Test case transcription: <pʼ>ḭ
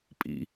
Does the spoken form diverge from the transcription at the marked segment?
no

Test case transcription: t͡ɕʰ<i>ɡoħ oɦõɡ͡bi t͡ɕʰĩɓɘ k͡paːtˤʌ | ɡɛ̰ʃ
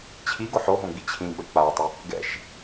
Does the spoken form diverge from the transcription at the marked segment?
no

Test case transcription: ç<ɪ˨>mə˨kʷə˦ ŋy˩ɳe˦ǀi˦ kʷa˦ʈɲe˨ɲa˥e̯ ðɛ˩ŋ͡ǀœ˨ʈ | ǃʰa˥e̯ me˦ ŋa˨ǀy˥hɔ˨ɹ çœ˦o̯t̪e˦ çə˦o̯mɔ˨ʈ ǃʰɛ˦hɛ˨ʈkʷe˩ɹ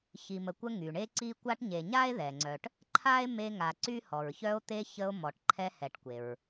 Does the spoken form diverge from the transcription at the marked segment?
yes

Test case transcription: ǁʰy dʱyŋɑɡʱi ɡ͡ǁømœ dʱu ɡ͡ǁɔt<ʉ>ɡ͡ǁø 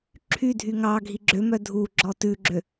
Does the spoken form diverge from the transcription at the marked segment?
no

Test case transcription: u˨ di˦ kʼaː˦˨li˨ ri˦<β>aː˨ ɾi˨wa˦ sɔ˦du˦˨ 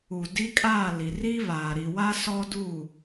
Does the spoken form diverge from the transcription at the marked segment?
no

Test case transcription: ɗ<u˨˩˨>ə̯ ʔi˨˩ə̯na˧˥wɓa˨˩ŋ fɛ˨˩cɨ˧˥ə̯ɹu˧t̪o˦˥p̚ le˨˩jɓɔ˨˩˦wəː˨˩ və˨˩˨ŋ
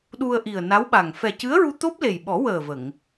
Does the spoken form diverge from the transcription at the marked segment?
yes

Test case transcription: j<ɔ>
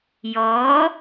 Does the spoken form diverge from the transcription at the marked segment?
no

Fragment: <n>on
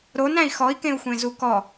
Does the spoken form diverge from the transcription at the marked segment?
yes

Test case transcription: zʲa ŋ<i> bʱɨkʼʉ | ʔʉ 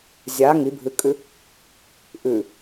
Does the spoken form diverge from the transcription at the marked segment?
no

